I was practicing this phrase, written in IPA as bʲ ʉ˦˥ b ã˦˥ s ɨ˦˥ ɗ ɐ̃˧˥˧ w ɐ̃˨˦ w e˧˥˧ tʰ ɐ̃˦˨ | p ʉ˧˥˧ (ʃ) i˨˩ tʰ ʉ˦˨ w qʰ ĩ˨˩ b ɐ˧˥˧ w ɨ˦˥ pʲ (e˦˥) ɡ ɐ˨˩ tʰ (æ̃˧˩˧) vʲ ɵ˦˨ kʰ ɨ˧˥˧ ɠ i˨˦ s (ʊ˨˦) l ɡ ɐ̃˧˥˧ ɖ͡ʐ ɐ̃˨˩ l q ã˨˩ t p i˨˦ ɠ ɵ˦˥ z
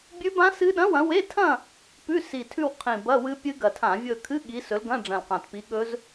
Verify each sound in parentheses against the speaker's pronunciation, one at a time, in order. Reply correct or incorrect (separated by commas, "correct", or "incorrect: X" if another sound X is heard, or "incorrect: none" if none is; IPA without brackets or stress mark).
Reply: incorrect: s, incorrect: ɨ˦˥, incorrect: ã˧˩˧, incorrect: ɵ˨˦